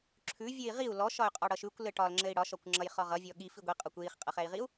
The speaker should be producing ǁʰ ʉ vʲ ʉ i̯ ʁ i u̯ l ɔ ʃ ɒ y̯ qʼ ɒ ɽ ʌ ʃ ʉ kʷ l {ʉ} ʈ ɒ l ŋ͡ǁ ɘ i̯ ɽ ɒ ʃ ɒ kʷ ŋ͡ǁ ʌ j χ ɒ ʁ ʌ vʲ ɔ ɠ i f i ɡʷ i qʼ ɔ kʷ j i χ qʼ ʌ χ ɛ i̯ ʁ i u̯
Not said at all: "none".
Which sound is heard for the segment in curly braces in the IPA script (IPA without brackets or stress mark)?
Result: ɘ